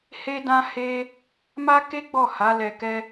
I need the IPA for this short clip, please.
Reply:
h e˦ d ã˦ h e˦ | m a˦ k e˦ ɡ͡b ɔ˦˨ h a˨˦ l ɛ˧ k ɛ˦

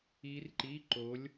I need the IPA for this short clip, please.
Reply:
i˦˥ r ǃ i˧˥˧ ǃ o˨˦ lʲ

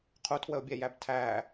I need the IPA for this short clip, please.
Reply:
qʰ u tʰ w ə o̯ bʲ ɛ j æ b tʰ æ

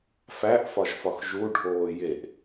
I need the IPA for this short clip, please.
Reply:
f æ ʔ f ɒ ʒ f ɒ x ʒ u ɖʱ oː j e ʔ

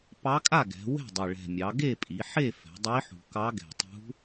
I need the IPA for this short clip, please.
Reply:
p ɑ˧˥ kʼ a˥˨ ɡ ɛ̤˩˧ w ɛ̤˥˨ dˤ ɪ˨˩ ɭ ɛ̤˨˩ mʲ ɑ˩˧ ɡ e˥˨ pʼ i˩˧ ħ e˥˨ f ɛ̤˩˧ dˤ i˧˥ ħ ṳ˨˩ k ɑ˧˥ ɡ ɛ̤˨˩ tˤ ṳ˧˥

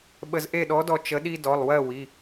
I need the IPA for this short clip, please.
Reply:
ɓ ə˧ z ʔ e˥˨ ɗ ɔ˧˥ d ɔ˧ t͡ʃ ə˧˥ ɗ i˥ d ɔ˩˧˩ lˠ w ɜ˥˨ w i˩˧˩

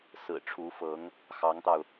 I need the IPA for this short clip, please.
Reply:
s ɹ̩˨˩ ʈ͡ʂʰ u˧˥ f ɤ˧˥ ŋ | x ɑ˧˥ ŋ t̪ ɑ˧ ʊ̯

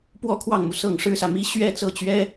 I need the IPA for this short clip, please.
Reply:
p w ɔ˥˧ kʰ w ɑ˥˩ ŋ m u˩ s ɤ˥˩ ŋ ʂ ɻ̩˥ s ä˨ m i˥ ɕ ɥ ɛ˥˧ t͡s ɤ˥˩ t͡ɕ ɥ ɛ˥

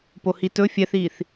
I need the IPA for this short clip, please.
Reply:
p o h i t ɵ fʲ ɛ θ iː θ

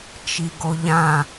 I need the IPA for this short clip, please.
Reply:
t͡ʃ i ɡ o ʎ ã

